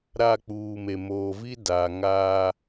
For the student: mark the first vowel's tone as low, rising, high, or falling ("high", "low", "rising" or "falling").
falling